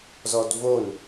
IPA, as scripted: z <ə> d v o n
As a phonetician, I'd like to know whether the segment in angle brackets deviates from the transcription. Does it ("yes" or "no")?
yes